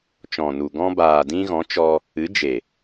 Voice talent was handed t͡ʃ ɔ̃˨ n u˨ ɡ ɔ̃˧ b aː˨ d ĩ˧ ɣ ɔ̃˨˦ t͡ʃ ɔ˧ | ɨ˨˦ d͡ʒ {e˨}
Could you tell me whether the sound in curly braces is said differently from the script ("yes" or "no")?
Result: no